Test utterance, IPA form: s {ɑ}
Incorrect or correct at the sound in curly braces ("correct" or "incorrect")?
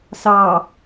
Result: correct